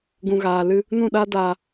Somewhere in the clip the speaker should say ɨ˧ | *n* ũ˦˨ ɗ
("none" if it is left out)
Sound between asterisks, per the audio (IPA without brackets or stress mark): n